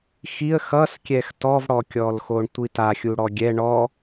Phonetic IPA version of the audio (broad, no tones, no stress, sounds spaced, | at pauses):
x i ə̯ x ʌ s kʲ ɛ x t ɔ v ɽ ɔ kʲ ɔ l x o ɳ tʷ i t a xʲ u ɽ ɔ ɡʲ ɛ ɳ ɔ